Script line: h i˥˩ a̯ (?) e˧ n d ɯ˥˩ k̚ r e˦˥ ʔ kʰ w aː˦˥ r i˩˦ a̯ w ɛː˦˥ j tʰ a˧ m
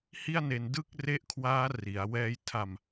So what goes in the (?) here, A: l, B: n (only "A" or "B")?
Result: B